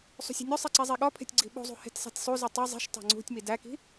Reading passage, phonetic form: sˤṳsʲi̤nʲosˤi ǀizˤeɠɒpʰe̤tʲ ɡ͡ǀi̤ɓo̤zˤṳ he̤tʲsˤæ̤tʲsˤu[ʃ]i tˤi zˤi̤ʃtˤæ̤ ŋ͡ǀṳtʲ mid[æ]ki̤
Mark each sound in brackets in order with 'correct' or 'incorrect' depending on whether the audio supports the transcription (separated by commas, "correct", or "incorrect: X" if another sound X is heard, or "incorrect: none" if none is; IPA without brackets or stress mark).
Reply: incorrect: z, correct